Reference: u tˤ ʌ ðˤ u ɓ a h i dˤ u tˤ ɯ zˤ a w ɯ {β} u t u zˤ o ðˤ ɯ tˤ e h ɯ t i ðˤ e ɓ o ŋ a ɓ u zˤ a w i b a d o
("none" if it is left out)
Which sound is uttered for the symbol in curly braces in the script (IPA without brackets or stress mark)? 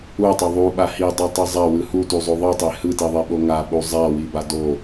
h